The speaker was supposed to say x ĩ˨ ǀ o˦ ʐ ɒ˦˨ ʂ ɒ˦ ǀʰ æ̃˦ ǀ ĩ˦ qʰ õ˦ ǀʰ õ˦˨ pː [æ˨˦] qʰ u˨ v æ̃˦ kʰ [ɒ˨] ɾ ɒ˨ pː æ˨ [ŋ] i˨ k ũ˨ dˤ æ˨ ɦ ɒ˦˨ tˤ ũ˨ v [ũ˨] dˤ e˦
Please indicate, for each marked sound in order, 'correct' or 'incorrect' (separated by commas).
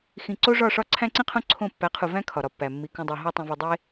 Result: correct, correct, incorrect, incorrect